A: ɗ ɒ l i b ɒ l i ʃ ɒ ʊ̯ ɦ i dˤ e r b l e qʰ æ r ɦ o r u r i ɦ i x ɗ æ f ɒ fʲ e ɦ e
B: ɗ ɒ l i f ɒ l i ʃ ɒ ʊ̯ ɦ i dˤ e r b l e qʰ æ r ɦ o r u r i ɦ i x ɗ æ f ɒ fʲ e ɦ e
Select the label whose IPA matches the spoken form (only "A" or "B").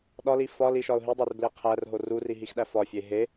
B